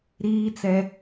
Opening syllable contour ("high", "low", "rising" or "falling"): high